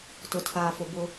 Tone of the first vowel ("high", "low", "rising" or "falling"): low